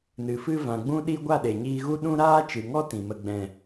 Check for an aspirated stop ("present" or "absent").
absent